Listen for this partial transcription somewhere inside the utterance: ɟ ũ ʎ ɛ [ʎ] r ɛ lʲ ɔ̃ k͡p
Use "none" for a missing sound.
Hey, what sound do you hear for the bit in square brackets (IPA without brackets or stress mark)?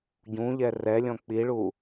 none